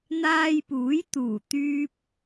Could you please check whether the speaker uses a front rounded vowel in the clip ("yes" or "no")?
yes